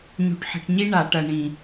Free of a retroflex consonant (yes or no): no